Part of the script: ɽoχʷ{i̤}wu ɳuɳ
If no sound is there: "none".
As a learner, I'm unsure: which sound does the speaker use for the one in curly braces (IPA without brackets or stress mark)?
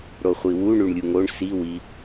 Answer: i